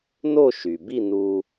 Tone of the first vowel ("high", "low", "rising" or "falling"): falling